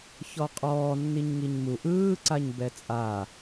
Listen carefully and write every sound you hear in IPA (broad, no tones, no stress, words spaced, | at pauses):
çɔqʼɔː nːiɲŋiɲmu ʔɯːǀaɲ bɛt͡sʼa